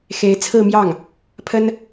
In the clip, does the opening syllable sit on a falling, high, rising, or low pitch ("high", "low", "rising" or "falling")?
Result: rising